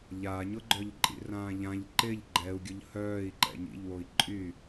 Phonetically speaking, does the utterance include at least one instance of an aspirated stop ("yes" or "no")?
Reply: no